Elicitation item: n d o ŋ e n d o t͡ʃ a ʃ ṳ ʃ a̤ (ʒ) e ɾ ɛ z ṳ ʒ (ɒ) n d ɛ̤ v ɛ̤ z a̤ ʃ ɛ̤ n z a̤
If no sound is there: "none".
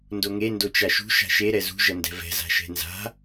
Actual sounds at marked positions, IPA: ʃ, ʌ

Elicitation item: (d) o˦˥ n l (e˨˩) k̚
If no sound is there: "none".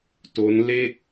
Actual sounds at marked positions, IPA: t, e˥˩

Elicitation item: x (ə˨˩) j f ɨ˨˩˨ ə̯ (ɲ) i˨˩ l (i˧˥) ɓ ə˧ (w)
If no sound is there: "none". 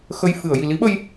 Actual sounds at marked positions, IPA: ə˧, j, i˧˥, j

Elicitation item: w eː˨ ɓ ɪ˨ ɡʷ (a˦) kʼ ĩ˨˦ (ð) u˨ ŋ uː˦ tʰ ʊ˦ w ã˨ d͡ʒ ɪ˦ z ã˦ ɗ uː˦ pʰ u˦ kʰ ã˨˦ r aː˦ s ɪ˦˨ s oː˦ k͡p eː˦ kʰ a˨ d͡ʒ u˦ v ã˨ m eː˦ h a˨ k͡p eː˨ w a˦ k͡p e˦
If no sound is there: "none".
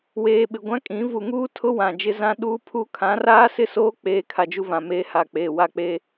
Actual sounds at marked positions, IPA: ã˦, v

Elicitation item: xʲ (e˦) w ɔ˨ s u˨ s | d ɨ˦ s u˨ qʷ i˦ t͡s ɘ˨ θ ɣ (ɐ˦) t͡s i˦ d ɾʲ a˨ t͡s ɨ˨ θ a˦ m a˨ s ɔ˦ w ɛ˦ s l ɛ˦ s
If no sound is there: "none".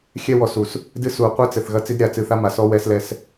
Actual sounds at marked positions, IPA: ɛ˦, ɐ˦

